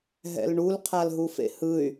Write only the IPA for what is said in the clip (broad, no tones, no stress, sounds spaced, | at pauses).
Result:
ɦ ɛ̰ l ɳ u l qʰ a l ɦ u f ḛ h ɯ y̯